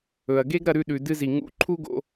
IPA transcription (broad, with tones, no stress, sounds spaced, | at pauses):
ɵ˩ ɐ̯ ɡ e˥ ɡ ɾ ɐ˧ ɾ ʉ˧ ɗ ʉ˩ d ɨ˧ z i˩ ŋ ṵ˧ ǃʰ u˥ ɡ o̰˧